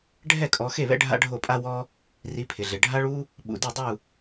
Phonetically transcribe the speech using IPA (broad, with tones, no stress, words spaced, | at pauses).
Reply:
ɖʱɛ˥˨kʼɔ˨˦xe˥˨βɛ̰˥ ɖʱa̰˥ɖʱo˥˨ pʼa˥wɔ˥ | ri˨˦pʰɪ˩ɮɪ˩ ɖʱa˥ɭu˥ | ɓṵ˩di˥˨dˤu˥˨